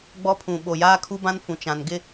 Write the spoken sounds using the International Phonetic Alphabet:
ɡ͡b ɔ˦ pʰ ũ˨ ɓ o˨ j aː˦ kʰ u˦ b ã˦ n f ũ˨ t͡ʃ ã˨ n ɡ ɪ˦

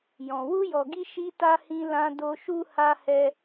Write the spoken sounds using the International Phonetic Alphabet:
j ɔ̃˧ w u˧ j ɔ˨ ɡ i˧ ʃ i˧ t a˧ h ĩ˧ l ã˧ d o˧ ʃ u˧ h a˧ h ɛ˧

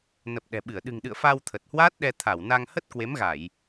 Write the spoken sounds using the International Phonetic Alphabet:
n ə˨˩ p̚ ɗ ɛ̤˨˩ ɓ ɨ˧˩ ə̯ ɗ ɨ̤˨˩ ŋ ɗ ɨ̰˧˨ ə̯ f a˧ w t̪ʰ ə˨˩ t̚ h w aː˦˥ t̚ ɗ ɛ˧ t̪ʰ a˧˩ w n a˧ ŋ h ə˦˥ t̚ k w e˨˦ m ɣ a˧˩˨ j

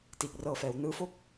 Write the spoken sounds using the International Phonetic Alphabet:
t iː˨˩ k̚ r ɤː˧ f ɛː˩˦ w n ɯː˦˥ f o˥˩ k̚

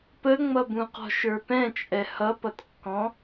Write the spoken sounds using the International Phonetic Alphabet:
p ə ŋ͡m ʌ b ũ q ɔ̤ ʃ ə˞ p ɛ̃ t͡ʃʼ ɛ h ʌ p ʌ t kː ɔ̃

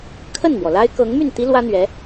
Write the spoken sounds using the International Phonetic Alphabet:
kʰ ə˥˩ n m w ɔ˩ l a˥ ɪ̯ k ɤ˧˥ ŋ m y˥˩ n t̪ i˥ l w ä˥ n̪ ɥ ɛ˧˥

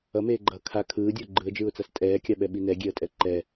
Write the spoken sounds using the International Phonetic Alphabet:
ʌ m eː ɡ͡ǃ ʌː kʰ a kʰ ɯː dʲ ʌ ʊ̯ ɡ͡ǃ ɯ ə̯ d͡ʒ ɯː ʊ̯ t͡s a s tʼ ɛː kʲ a ɓ ɛ ɓ i n ɛ ɡʲ e ə̯ tʼ ɛ ǃ ɛ

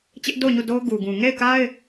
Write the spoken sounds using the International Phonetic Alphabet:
t͡ɕ ɪ˦ ʔ d o˦˨ ʊ̯ ɲ u˦˨ d o˦ ʊ̯ ɡ u˨ ɡ ũ˨ ŋ e˦˨ ɪ̯ k a˦ ɪ̯

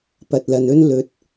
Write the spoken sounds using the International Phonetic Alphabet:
p ɐ˨ t̚ l ɐ˨ n ɵ˥ n l ɵ˨˥ t̚

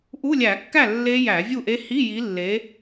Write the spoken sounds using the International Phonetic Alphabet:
ʔ u˧˥˧ lʲ æ˧˩˧ kː æ˥˩ lː e˦˥ j æ˧˩˧ vʲ u˥˩ ʔ e˦˥ h i˧˥˧ j i˨˦ lː e˨˦

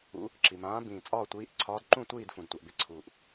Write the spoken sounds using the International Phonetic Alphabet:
ṵ˨˦ | ǁ i˩ m ãː˨˦ b ĩː˩ t͡sʼ ɒː˦˨ tʷ iː˨˦ ʔ ǀʰ ɒː˨˦ d ǃ ũ˦˨ tʷ iː˦˨ d f ũ˩ d tʷ a˩ ʔ b ɪ˨˦ ǀʰ uː˩ ʔ

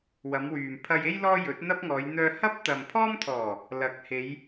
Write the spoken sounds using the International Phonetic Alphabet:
w ɐ˨˧ m w yː˨ m pʰ ɐ˧ j e˥ j l ɔː˥ j ɵ˨˥ t̚ n̪ ɐ˥ p̚ ŋ ɔː˨˧ j n̪ œː˧ h ɐ˥ p̚ t̪ ɐ˨ m pʰ ɔː˥ m t̪ʰ ɔː˨˩ | l ɐ˨ k̚ h e˨˧ j

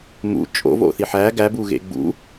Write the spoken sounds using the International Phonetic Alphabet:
m ṵ t͡ʃʼ o̰ v o̰ θ i ħ æ ɡ æ b u ɣ ḛ ɡ͡b ṵ

